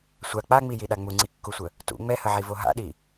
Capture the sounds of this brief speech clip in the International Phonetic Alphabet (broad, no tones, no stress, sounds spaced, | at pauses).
sʷ a k͡p a ŋ͡m i j i ɗ a ŋ͡m u ŋ͡ǀ i kː u sʷ ə | t ṵ ŋ͡m ɛ h ə ʕ i v o ɦ a̰ ɗ i